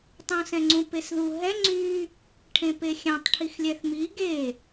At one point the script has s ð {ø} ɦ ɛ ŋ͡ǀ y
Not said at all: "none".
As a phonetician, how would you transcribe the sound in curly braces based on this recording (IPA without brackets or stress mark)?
u